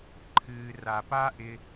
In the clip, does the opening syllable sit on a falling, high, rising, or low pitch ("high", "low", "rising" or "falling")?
low